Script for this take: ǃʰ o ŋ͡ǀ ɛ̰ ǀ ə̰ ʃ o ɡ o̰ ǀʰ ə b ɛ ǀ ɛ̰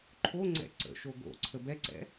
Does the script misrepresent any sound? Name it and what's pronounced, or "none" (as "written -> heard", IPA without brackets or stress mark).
none